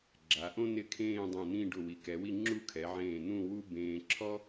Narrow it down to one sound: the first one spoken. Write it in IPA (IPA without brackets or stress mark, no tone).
ɡ͡ǁ